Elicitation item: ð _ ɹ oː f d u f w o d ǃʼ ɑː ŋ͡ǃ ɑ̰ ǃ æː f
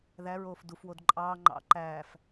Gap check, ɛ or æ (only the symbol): æ